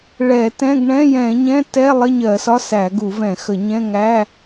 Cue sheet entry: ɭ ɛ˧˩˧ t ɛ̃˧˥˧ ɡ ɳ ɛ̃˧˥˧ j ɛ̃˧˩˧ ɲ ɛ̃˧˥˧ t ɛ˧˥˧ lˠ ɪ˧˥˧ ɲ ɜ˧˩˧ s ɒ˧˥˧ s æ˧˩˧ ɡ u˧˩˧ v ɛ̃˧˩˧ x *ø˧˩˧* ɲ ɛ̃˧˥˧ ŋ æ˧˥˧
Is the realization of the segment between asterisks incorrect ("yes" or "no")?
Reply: yes